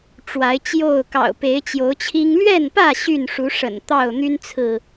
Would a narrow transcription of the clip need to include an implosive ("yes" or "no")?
no